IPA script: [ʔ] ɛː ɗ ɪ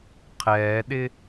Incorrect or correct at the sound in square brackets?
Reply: incorrect: qʰ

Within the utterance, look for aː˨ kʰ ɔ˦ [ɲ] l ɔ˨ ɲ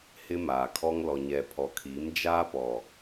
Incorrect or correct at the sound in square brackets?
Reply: incorrect: ŋ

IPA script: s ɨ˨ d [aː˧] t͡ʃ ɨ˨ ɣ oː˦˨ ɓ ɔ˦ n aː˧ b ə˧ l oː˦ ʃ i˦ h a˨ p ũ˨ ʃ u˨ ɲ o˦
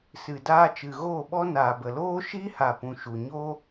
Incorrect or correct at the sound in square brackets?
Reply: correct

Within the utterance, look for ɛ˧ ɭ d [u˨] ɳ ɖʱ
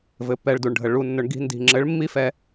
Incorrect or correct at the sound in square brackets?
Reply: correct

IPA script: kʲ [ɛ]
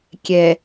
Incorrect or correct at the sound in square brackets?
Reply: correct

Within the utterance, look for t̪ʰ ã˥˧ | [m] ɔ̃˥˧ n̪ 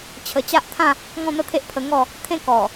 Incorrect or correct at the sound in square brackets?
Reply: incorrect: ŋ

